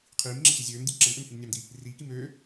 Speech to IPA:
qʰiːmŋ͡ǁet͡ɕi zʲøːmdʲu ǁɛmʔømhim nʲɑmdi | riːkim øː

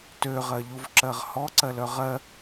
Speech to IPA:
tøʁɜʎuvǁɜʁ hɔǀɜlœ ʁɜ

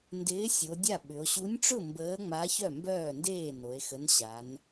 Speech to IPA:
ndɪː˨˥sʲo˩˧ dʲa˥˩ɓʏ˩˧o̯ ɕu˨˥nʲʈ͡ʂʊ˥˩ mbəː˨˥ŋ͡ma˨˥ çœ˥˩mbœː˥˩ndeː˥˩ no˩˧e̯xə˨˥n ɕa˩˧n

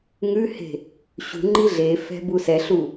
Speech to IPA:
ŋʉhe̤ | ɕṳ ŋ͡ǃiɮefɛ̤ busɛɬu

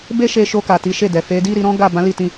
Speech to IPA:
be˦ ʃe˧ʃo˧ka˨ ti˨˦ʃe˦˨ dɛ˨fe˨˦di˦ ɾi˧ɾɔ̃˦ɡa˦˨ bã˨˦li˦˨tĩ˧

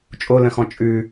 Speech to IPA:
t͡ʃʼolə̃xɔ̃ t͡ʃʼʉ

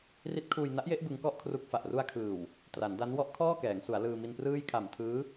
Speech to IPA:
ri˦˥t̚kʰuː˧j na˦˥ʔje˦˥ʔ bɯ˦˥ŋkɔ˥˩ʔkʰru˦˥k̚fa˨˩ʔ ru˧a̯kʰɯː˨˩w | tra˩˦nda˦˥n wɔ˦˥ʔkʰɔː˥˩kɛː˩˦ŋsu˩˦a̯ lɯː˧mi˧nprɯː˥˩j kʰa˨˩mtʰɯː˦˥

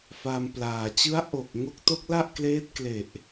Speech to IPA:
fa˧mplaː˨˩ t͡ɕɯ˦˥a̯ʔo˨˩k̚ ŋo˦˥k̚to˦˥k̚la˥˩ʔkleː˦˥t̚ kle˨˩ʔ

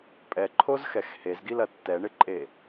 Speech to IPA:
pʼɛǃʰozxɛx hezɡilɐ tːɛɳɪǃʼe

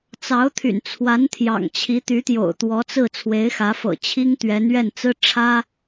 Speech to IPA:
t͡sɑ˧˥ʊ̯t̪ʰy̰˨˩n t͡sʰwa˧˥nt̪ʰjɑ̰˨˩ŋ t͡ɕʰi˧˥t̪y˧˥t̪jo̰˨˩ʊ̯ t̪wɔ˧˥t͡sɹ̩˥˩ t͡sʰwe˧˥ɪ̯xä˧˥fɤ̰˨˩ t͡ɕʰi˥ŋt̪ɥɛ˧˥n ɥɛ˥˩nt͡sɹ̩˥ ʈ͡ʂʰä˥

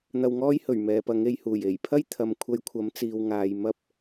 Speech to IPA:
n̪ɐ˧wŋɔː˥j hɵ˨˩ɥ mɛː˨pɐ˨˧ŋe˨jhuː˨˩j e˨˩jpʰɐ˥j t̪ʰɐ˨mkʷʰɐ˨˧j kʷʰɐ˨˥mt͡siː˨wŋaː˨j mɐ˧p̚

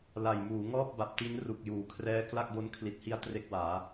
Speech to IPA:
la˨˩jmuː˩˦ ŋɔː˥˩p̚ba˨˩p̚ti˦˥n ru˨˩k̚juː˩˦kʰrɛː˦˥ kla˥˩k̚bo˦˥n kʰli˨˩t̚hi˦˥a̯ tre˦˥k̚waː˩˦

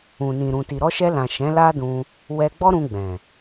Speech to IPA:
ũ˨nĩ˨ ɾũ˨ti˨ ɾɔ˧ʃɛ˧lã˨ ʃɛ̃˨˦la˦dũ˧ | wɛ˧ɡ͡bɔ˦ɾũ˧ ɡ͡bɛ̃˨

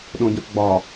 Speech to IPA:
ɗõɟɐ̃fɡ͡bɒ

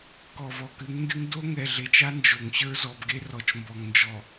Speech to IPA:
kɔ˨vɔ˨kɨ˨˦ŋndɨ˦ŋ do˦ ŋɛ˨ɮe˨t͡ʃa˦ nd͡ʒo˨ŋɕə˞˦ zɔ˨bɡe˦ rɔ˨t͡ʃmbɔ˨ŋnd͡ʒɔ˨

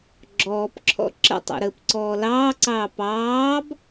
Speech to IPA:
ɡ͡ǁɔːpǁʰɔ̰ ǁə̰tˤḛ ɾəːpǀɔːlɑːǀɑː pɑːb

